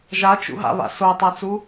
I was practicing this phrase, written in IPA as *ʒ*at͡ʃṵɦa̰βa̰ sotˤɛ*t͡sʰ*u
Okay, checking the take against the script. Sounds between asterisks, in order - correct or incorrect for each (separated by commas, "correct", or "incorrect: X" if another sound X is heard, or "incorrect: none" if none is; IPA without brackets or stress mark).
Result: correct, incorrect: t͡s